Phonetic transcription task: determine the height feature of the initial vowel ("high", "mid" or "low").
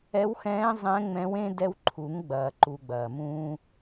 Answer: mid